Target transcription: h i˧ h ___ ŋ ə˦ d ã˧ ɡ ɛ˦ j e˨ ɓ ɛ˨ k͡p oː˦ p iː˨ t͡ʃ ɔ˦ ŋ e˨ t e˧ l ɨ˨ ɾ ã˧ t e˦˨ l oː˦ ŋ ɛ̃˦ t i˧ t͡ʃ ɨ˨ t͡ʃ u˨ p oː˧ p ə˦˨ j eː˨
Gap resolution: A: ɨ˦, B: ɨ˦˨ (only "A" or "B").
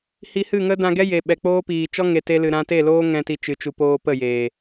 B